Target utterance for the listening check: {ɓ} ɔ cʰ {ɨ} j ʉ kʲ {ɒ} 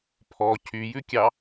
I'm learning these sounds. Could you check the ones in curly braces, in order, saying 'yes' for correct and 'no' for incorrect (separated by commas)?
no, no, no